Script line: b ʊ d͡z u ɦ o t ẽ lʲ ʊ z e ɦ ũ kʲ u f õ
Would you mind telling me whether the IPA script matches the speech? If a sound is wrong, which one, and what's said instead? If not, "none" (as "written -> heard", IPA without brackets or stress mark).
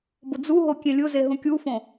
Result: t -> kʲ